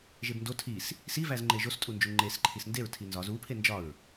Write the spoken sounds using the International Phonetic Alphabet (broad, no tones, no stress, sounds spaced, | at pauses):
ʒ e b n d o tʰ i s | s i v æ z ŋ͡ǃ e ʒ o s tʼ u n d͡ʒ u ŋ͡ǃ e s ǃʰ i s n d e ɹ tʰ i n z ɒ z u pʰ e n d͡ʒ ɒ ɹ